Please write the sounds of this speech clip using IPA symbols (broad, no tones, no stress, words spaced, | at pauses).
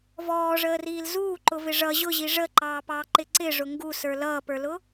vɔːʐəːriːl zuːǃʊvɪ ʐʌ ʑʊʑi ʐəǃɑːpɑːǃɪ ǀɪʐʊ ŋɡusə˞ lʌːpə˞lʊ